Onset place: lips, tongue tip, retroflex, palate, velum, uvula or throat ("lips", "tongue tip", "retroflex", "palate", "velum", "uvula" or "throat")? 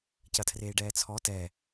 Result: palate